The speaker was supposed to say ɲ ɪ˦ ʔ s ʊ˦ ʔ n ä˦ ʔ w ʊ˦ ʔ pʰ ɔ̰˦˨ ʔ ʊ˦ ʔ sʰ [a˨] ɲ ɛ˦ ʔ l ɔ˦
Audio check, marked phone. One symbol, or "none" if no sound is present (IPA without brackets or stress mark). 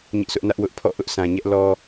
ã˨